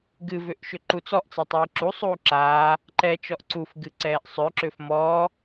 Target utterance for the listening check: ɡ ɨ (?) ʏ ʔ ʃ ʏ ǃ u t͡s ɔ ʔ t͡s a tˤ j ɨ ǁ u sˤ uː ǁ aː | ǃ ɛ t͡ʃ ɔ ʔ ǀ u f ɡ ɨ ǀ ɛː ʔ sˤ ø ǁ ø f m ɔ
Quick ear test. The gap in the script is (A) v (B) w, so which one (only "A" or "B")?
A